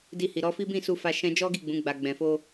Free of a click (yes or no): yes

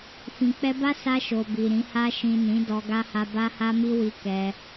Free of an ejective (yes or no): yes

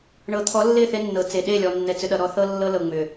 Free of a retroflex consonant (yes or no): no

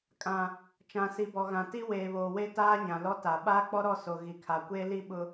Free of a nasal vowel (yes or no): no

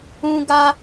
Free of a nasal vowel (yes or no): no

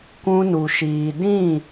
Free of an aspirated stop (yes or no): yes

